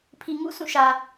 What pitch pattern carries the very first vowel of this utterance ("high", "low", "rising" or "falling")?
low